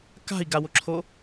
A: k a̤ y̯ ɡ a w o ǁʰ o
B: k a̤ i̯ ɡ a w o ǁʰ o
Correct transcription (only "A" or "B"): B